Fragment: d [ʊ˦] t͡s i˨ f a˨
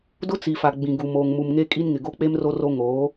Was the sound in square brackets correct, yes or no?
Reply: yes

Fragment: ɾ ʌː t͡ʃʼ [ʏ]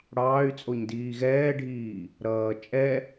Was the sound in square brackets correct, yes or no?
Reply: no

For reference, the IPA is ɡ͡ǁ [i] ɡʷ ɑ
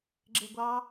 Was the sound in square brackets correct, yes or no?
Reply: no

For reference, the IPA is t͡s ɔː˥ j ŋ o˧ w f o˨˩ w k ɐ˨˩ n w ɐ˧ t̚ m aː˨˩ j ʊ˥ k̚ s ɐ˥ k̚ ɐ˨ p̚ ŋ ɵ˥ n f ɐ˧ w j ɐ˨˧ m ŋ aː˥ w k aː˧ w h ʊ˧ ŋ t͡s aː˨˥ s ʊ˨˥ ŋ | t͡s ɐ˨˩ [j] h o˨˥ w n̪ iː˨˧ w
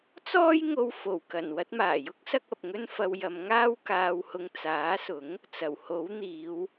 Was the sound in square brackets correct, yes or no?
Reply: no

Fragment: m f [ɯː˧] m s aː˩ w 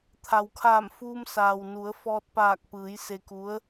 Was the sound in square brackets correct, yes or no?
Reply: no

